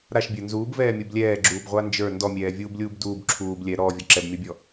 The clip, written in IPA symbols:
ɾaʃbʲə˞ nzuːbvɛːmʲub lʲɛːɡ͡ǁuːbʁʷa nd͡ʒə˞ ndɔmʲɛːvʲuːblʲuːb duːb ǁʰuːb lʲɛ ɾɔːvʲɔ ǁɛbmʲɔbʲɔ

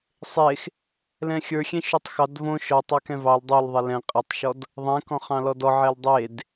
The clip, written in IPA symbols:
sˤex | lɛ̃xʲə˞ xʲẽʃotˤxɑd võ ʃɔtˤɑ kɛ̃vɑl dˤol ðˤelɛ̃ qʼɛtˤʃɔd | ðˤɛ̃kɔ̃ χɑ̃lɔdɔ ʕɛldˤed

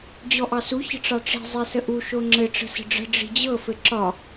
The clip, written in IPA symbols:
d͡ʑɔʔɑsu çə̤ʈ͡ʂɑʈ͡ʂi̤ zˤesəʔu ʃoŋ͡ǁɘ ʈ͡ʂə̤sə̤ɖ͡ʐə̤ ɖ͡ʐi̤d͡ʑɤ fɘǁɒ

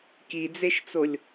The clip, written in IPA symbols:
kid͡zeʃt͡solʲ

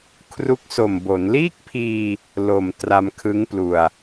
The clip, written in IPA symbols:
kʰru˦˥k̚so˨˩mbo˩˦n liː˥˩k̚pʰiː˧ | lo˨˩m tra˧mkʰɯ˦˥ŋplu˧a̯

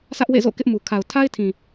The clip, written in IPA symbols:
sʰä˦ʔwḛ˦˨zo̰˦˨ kɪ˦ʔmu˨ kʰa˨ʊ̯ tʰa˦ɪ̯tʰĩ˨

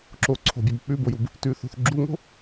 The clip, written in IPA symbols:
ǁoǀʰo̤bʲab k͡pʉbojub | tʉθo̤θ ɡ͡ǁuŋo̤

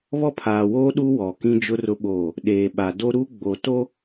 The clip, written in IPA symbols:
βɔ˦˨pʰaː˨woː˦ ɗu˦wɔ˨ kĩ˦d͡ʒʊ˦rʊ˦ɓoː˦˨ | ɗeː˨ɓa˨do˦ ɾu˦ɡ͡bo˨to˦

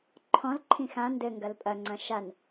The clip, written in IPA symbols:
ǃʰɔ̃lǃʰĩ xã ndɘ ŋɡɐlpʼɐŋ͡ǀɐ̃ ʃan

